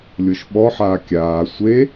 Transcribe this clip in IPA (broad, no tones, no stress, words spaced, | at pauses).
lʲoʃɓɔħaː kʲaː sʷe